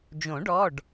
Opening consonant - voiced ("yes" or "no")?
yes